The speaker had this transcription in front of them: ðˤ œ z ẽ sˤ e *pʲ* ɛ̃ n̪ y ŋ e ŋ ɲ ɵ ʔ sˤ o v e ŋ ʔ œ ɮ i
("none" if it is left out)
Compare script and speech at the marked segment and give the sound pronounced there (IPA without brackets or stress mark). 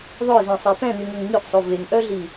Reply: p